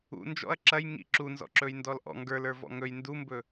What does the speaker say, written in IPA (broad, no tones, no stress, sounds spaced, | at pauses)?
ṵ n d͡ʒ ɔ̰ ɐ̯ ǁ ɐ j ŋ ḭ ǁ u n z ɔ̰ ǁ ɵ j n d ɔ l ʔ ɔ̰ ŋ ɡ ə˞ l ə˞ v ɔ̰ ŋ ɵ j n d u m b ɵ